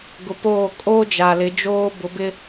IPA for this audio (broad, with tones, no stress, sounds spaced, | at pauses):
ɡ ʊ˨ p oː˦˨ kʼ oː˦ d͡ʒ a˨ l ɪ˨˦ d͡ʒ oː˦ b ʊ˨˦ b ɪ˦